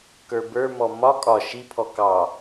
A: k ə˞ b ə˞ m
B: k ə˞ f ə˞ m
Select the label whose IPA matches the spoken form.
A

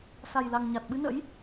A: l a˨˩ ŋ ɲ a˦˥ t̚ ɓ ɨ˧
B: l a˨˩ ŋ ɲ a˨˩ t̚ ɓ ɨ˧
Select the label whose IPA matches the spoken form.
B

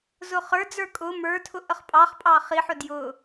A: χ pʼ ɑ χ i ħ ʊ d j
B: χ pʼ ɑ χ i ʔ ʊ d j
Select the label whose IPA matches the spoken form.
A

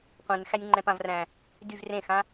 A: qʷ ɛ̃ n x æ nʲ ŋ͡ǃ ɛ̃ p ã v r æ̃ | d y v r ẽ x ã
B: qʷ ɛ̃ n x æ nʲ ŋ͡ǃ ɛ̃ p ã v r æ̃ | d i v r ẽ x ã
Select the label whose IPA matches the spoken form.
A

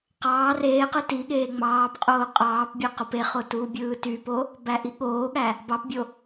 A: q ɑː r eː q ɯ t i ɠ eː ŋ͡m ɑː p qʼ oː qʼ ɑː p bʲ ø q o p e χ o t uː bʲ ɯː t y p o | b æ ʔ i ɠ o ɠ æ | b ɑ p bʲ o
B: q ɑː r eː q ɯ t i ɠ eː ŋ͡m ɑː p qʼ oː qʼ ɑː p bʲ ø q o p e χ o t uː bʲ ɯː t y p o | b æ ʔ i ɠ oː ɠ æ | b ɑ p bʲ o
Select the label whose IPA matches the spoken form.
B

